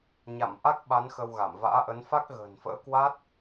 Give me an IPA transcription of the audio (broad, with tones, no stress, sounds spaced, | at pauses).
ɲ a̰˧˨ m ʔ a˦˥ k̚ ɓ a˨˦ n x ə˧ w ɣ a˧˩ m v a̰ː˧˥ ʔ ə˨˦ n f a˦˥ k̚ ɣ ə̤ː˨˩ n f ə̰ː˧˥ k w a˦˥ t̚